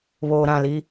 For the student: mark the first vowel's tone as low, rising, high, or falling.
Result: low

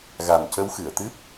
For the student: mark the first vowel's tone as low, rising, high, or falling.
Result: low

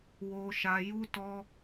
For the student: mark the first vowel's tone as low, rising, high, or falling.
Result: high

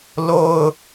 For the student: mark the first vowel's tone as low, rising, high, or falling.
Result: low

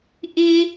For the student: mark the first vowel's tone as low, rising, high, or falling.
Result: high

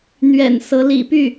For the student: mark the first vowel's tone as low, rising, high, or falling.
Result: low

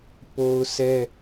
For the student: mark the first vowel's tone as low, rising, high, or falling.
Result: high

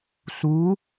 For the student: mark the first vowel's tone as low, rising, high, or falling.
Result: rising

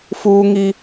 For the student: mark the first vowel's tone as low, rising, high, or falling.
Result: high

